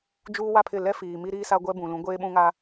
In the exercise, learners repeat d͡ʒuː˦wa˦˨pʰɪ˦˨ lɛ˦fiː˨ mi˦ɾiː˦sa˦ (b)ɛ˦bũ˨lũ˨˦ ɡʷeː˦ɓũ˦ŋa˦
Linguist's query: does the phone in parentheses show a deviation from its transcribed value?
yes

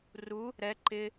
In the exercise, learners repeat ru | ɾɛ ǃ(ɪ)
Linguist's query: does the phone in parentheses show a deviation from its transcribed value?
no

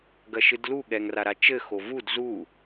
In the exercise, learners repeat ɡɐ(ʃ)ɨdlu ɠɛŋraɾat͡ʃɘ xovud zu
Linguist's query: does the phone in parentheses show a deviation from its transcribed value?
no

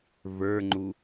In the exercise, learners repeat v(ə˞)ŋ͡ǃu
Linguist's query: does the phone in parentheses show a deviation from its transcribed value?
no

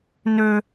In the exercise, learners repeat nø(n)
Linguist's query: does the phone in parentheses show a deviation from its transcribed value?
yes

